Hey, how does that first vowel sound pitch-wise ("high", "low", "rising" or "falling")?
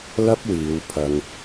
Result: high